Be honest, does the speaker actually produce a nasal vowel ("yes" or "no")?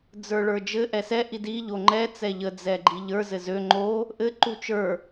no